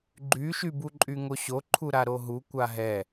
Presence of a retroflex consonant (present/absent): absent